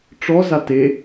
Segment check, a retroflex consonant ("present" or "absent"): present